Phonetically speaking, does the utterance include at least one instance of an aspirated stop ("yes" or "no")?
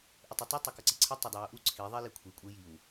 yes